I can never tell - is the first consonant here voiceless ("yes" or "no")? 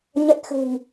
no